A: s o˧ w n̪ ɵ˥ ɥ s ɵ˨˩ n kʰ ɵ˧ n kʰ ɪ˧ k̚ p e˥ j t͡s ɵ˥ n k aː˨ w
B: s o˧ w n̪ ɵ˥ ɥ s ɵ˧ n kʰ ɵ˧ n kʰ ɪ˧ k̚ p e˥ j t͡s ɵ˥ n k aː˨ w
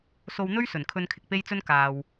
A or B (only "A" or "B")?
A